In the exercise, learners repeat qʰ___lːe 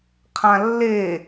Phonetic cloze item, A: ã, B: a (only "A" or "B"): A